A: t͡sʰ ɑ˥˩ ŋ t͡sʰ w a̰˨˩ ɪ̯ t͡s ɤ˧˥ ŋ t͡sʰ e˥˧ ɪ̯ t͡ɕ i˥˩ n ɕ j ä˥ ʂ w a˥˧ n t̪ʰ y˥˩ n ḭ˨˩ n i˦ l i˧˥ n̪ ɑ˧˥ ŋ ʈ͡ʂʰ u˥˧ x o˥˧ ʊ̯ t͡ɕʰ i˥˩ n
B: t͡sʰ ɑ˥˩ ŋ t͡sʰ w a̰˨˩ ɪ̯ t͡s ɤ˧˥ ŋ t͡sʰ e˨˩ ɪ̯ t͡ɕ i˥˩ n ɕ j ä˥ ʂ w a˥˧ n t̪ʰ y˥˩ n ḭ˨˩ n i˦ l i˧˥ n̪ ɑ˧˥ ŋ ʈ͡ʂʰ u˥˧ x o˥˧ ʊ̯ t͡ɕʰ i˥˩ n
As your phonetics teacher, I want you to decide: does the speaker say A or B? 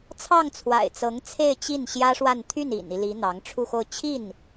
A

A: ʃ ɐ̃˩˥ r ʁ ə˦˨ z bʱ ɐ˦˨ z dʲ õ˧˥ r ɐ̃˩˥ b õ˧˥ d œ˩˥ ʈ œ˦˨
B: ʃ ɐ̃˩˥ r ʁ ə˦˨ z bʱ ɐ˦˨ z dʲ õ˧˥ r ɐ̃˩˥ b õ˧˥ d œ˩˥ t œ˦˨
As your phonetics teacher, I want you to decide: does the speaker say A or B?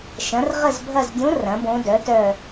B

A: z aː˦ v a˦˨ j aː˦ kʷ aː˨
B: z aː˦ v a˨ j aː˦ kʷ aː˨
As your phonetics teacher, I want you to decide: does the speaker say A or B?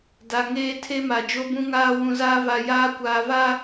B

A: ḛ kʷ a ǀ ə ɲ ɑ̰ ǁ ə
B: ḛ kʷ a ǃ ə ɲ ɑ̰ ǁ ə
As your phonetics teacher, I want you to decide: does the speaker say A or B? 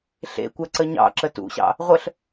A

